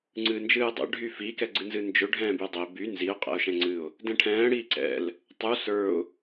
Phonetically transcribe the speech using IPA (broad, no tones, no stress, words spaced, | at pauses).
ŋ͡ǀɨːnd͡ʒɨːdˤɛ̰ ɖʱyfikɛ ɡ͡ǀɨnzɨnd͡ʒɵ ɖʱɛ̃ːbydˤɵɪ̯ by nziʊ̯ qʼɛ̰ʊ̯ʃɛ̃ŋ͡ǀɨʊ̯ | dɛ̃ʈʰɛ̃ː ɽiːǀɛ̰l | tˤu sə˞ʊ̯